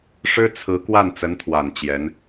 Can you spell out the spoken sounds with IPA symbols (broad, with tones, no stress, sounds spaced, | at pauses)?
ʂ ɻ̩˥ t͡sʰ ɹ̩˧˥ k w a˥˩ n t͡s ə˧˥ n t̪ʰ w a˨˩ n t͡ɕ j ɛ˧˥ n